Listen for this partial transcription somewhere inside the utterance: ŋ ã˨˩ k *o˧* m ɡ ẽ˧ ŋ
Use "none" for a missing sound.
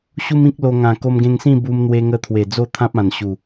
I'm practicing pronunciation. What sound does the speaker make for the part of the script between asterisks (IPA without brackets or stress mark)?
o˧